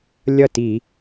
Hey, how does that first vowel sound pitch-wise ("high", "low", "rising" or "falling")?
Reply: falling